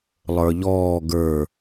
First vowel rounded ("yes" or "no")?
no